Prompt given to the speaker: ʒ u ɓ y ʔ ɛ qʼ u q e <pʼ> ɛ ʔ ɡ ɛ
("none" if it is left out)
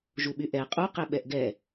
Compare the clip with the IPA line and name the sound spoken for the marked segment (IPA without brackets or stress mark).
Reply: ɓ